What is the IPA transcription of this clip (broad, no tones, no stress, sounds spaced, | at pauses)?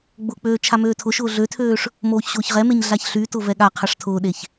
ɡ͡b ʊ k͡p øː t͡ʃʰ a m øː tʰ ʊ ʃ ʊː ɮ ø tʰ øː ʂ | m oː ç ɕ ʊː ç ʁ ɛ m e ɲ ɮ a ç ɬ y t ʊ v ɛ ɠ a qʰ a ʂ tʰ ʊː ɗ e ç